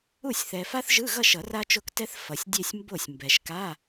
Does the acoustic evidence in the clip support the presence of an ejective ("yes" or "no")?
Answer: no